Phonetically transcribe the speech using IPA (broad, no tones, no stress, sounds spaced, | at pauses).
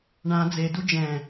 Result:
ɳ ã d͡z e d u d͡ʒ ɛ̃